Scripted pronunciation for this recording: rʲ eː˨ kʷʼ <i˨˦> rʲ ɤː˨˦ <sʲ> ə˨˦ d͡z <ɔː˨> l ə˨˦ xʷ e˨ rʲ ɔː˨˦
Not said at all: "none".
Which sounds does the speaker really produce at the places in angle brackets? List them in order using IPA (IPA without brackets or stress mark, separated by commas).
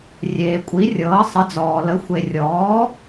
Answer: i˨˦, sˤ, ɔː˨